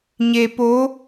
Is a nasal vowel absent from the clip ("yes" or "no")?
yes